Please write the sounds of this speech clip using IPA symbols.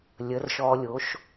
lʲə˩˥rʃɔ˧lʲo˩˥ʃ

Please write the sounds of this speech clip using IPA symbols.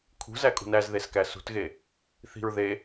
kʰṳzækʼṳn æz ðeskæsṳtɣe | θi̤ɹ ðe

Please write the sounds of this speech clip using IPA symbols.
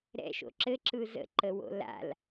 ɾɛ̰ʃo̰ ǁɘǁɯ zə̰ǃəwo̰ la̰l

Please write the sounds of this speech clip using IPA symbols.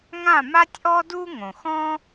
ŋã˥˧ma˥tʲʔɔ˥du˥ ŋõ˨xɔ̃˥

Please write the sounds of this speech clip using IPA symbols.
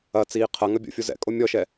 ɐt͡siː qʰɐ ŋɐbʲo̰fʲo zɛ̰kʼo mʲɔʃɛ

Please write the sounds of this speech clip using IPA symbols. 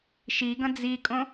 ʃiɡɐ̃ d͡zikʼõ

